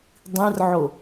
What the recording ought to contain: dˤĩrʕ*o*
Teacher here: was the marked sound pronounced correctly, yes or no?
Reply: yes